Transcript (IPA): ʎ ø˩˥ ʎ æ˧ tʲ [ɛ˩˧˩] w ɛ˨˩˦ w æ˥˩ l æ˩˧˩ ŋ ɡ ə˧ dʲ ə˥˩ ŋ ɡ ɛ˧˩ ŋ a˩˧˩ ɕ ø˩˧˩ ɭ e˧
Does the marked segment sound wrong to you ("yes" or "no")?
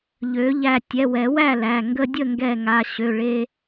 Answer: no